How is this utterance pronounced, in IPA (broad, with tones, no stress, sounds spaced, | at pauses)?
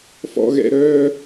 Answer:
f ɔ̰˨ ɣ ɛ̰˨ ɾ œː˦